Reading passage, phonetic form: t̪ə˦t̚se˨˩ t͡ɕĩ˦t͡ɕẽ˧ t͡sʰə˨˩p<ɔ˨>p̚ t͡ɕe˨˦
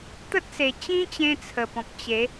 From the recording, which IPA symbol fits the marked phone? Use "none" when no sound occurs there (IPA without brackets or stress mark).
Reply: ɔ̃˨